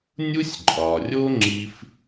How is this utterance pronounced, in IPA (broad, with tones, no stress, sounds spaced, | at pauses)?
nʲ u˧ sʲ ǃʼ ɒ˩ rʲ o˧ ŋ͡ǁ i˧ f